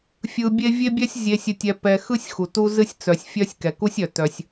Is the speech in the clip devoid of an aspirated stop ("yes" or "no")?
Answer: yes